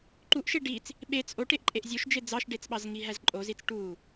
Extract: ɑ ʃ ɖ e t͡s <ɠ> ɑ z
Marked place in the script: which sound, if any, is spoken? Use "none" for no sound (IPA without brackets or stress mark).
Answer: ɓ